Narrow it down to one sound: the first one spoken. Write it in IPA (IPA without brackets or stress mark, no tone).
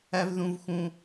æ